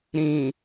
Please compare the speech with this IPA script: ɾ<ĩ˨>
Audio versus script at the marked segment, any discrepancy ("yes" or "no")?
no